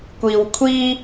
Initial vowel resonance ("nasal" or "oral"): oral